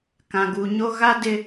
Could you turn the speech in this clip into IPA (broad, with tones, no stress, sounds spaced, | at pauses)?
k ã˨ ɡ u˨ ɲ o˦ ɣ a˦ d ɪ˦